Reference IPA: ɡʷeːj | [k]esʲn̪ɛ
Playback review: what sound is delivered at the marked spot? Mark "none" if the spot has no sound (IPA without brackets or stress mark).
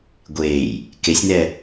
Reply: k